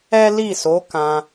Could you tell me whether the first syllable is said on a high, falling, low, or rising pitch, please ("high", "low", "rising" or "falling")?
high